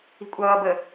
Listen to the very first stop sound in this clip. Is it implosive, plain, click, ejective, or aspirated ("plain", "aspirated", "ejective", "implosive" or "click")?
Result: ejective